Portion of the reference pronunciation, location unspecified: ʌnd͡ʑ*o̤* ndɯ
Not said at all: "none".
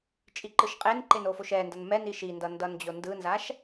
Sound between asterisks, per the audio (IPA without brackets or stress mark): o